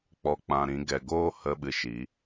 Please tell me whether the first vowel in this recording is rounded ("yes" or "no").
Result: yes